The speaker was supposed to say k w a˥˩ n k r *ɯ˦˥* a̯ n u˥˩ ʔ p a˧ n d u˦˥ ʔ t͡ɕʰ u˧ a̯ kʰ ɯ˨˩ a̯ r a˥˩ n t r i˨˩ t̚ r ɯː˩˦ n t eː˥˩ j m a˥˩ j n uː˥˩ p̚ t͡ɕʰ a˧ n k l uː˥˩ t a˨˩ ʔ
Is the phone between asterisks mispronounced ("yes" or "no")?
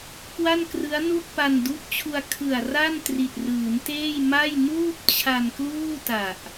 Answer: no